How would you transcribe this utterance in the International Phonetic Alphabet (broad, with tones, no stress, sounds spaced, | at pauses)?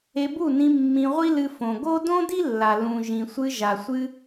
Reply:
e˧ b u˦˨ n ĩ˧ mː ĩ˧ ʁʷ i˦ l ɨ˧ f õ˨ ɡ o˦ d õ˦ d i˦ lː a˨ l ũ˨ ʒ ĩ˨ sʷ ɨ˧ ʒ a˨ sʷ ɨ˧